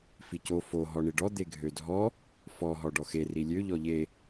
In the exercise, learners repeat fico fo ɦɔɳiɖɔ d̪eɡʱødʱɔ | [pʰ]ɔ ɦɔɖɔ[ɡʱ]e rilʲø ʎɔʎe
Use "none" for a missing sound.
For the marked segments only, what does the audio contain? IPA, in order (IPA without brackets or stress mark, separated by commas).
f, x